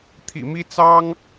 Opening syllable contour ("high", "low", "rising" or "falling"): low